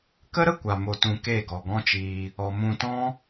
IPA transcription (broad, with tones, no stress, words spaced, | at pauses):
kə˦ɾə˦kʷa˨ mo˧tũ˧ke˦˨ ɡɔ˨ɡɔ̃˦t͡ʃiː˧ | ɔ˧ mũ˧ tɔ̃˦